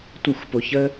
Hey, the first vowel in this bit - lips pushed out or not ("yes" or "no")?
no